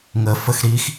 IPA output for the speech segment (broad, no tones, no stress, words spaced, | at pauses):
ŋəfəx ɾix